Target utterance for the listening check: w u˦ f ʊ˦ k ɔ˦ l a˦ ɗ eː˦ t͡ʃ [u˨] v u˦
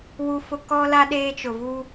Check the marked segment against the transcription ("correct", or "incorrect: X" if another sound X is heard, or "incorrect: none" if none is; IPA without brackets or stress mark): incorrect: ʊ˨